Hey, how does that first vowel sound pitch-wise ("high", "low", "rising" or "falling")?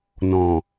low